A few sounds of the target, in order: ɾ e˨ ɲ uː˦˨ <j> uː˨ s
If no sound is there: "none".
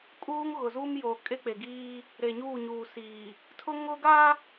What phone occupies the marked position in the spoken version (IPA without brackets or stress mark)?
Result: ɲ